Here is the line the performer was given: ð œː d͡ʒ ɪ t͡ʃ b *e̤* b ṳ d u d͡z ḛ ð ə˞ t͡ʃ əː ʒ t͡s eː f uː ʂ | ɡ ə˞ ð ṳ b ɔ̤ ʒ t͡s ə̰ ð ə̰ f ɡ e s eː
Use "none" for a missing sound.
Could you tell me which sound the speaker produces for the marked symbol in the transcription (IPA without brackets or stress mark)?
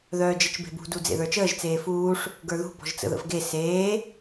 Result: e̤